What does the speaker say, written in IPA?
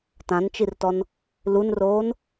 t ã n t͡ʃ i r t ɔ n | l u n r oː n

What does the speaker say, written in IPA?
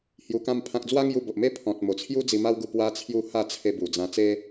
h j u˧ k ã˦ m pʰ ã˦ k̚ d͡z w a˦ ŋ j u˧ b o˨ ʔ m e˥˧ pʰ ɔ̃˨ t̚ m o˨˩ t͡sʰ j u˦ d͡z i˧ m a˦ w ɡ u˧ p w a˦ t͡sʰ j u˥˧ h a˥˧ t͡sʰ e˧ b u˨˩ d͡z ã˧ t͡s e˦

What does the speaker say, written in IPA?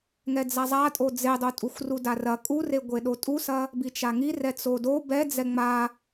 ŋ ɛ d͡z a zˤ a tʼ o d͡z e dˤ o tʼ u xʷ r u d a r ɐ kʼ u r e ɡʷ e ɗ o tʼ u s ɐ | b i t͡ʃ a ŋ i r ɛ t͡s o d o b ɛ d͡z ɛ ŋ͡m a

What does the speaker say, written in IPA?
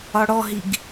ɒ ɽ ɔ ɦ i ɡ

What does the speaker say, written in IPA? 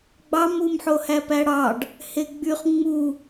ɡ͡b ɑ m u m ħ o h æ p æ ɽ ɑ ɖ | h e ɡ͡b y χ ŋ͡m u

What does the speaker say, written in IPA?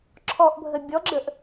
ǁʰ ɔ ʔ bʱ ə bʲ ɔ ɡ͡ǁ ə ʔ

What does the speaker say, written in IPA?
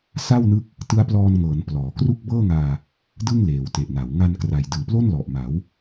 s a˥˩ w n ɯ˦˥ k̚ | t ɯ˦˥ a̯ p l ɔː˧ n ŋ ɤː˩˦ n p l ɔː˩˦ k r u˥˩ k̚ b ɤː˥˩ ŋ aː˧ | d ɯ˥˩ ŋ l eː˨˩ w t e˨˩ ʔ n a˩˦ w ŋ a˧ n k r a˨˩ j d ɯː˨˩ p l o˥˩ n l ɔ˨˩ ʔ m a˩˦ w

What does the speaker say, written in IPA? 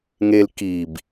ŋ e l k i b

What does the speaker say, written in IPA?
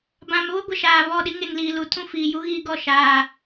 b ã˨ m β ʊ˦ ɡʷ ɪ˨ ʃ aː˨ β ɔ˦˨ ɗ i˦ ŋ e˨ ŋ l iː˨ l u˨ tʰ ũ˦ f iː˨ j u˦ ɣ iː˦ ɡ ɔ˦˨ ʃ aː˨

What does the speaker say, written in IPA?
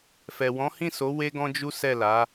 f ɛ˨ w ɔ̃˨˦ h ĩ˦˨ s o˨˦ w e˦ ɡ ɔ̃˦ d͡ʒ u˦ s ɛ˦˨ l a˨˦

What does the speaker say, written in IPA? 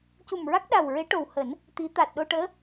c u˨˩ m ɹ a˦˥ k̚ ɗ a˨˩ w ɹ e˧˥ ʈ o˨˩ w h əː˨˩˦ n | t̪ i˧˥ t̪ aː˨˩ t̚ ɗ o˧ ʈ əː˧˥

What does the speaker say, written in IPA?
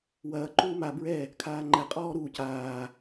w ɐː ǃ uː m a b ɹ ɛ | kʰ aː ŋ͡ǃ ɛ qʼ ɔː ɾ uː c aː

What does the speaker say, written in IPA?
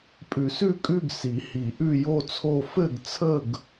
pʼ ʉ˨˩˦ s ʉ˥˧ kʼ ʉ˥˧ ɡ s i˨˩˦ h i˨˩˦ ʔ ʉ˥˧ j o˥˧ t͡sʰ o˥˧ f ɘ˥˧ ɡ t͡sʰ ə˥˧ ɡ

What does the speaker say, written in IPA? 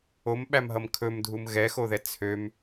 o m ɓ æ m ɦ ʌ m kʰ ɵ m dʱ u m ɣ ɛ x o ð ɛ t͡sʰ ø m

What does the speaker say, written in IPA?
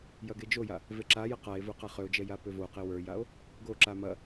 j ɐ ɡ e d͡ʒ o j a | v e ǁ a j ɐ q a e̯ v ə˞ q a χ ø o̯ d͡ʒ ɛ j a p ø v o q e w ə˞ j a o̯ | ɡ o ǁ a m ɐ

